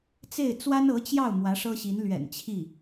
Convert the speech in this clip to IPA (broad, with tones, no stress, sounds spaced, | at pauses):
t͡s e˥˩ ɪ̯ t͡s w a˥ n ɤ˧˥ t͡ɕ j ɑ˥˩ ʊ̯ m w ä˧˥ ʂ ɤ˥ ɕ i˧˥ n l ɥ ɛ̰˨˩ n t͡ɕʰ i˥˩